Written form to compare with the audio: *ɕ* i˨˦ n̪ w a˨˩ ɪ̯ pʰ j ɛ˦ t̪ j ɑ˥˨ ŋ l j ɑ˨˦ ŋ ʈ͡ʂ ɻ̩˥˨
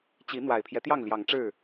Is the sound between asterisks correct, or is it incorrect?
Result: incorrect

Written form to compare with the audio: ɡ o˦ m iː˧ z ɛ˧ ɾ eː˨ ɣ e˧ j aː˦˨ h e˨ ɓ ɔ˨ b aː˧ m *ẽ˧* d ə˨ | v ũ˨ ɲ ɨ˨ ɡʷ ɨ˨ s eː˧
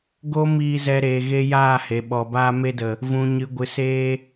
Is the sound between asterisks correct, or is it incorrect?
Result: incorrect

